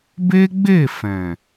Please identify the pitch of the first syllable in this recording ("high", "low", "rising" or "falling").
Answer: high